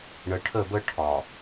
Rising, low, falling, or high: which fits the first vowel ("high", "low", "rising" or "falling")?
low